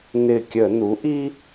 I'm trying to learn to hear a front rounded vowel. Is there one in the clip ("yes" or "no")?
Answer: no